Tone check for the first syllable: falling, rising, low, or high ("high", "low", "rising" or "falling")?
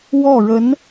falling